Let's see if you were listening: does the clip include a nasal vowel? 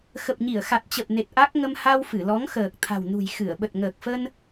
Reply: no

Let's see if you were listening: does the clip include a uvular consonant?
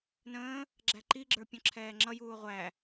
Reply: yes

